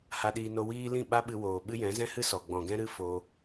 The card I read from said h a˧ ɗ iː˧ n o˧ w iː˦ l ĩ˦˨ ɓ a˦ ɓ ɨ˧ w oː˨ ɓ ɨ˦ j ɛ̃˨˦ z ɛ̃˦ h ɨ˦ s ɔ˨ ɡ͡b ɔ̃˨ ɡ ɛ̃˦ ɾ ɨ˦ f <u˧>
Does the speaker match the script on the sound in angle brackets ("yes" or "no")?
no